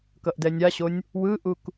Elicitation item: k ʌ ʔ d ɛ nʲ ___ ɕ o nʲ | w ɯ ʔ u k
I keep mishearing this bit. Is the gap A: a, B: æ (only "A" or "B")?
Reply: A